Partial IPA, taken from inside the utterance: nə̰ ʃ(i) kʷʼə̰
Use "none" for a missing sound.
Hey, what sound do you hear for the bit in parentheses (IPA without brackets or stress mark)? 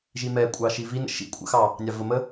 ḭ